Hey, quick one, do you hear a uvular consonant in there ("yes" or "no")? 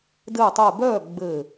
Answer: no